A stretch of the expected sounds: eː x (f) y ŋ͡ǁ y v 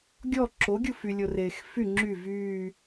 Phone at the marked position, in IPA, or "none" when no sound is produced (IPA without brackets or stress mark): f